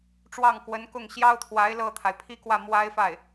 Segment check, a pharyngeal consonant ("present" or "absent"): absent